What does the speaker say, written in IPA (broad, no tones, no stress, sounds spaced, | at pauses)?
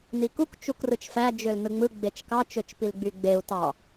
n i k u k t͡ʃ u k r ɯ t͡ʃ f æ d͡ʒ ø l n ɯ ŋ͡m ɯ ɡ͡b e t͡ʃ k ɑ t͡ʃ ø t͡ʃ p i l ɡ͡b y ɡ͡b e u̯ t ɑ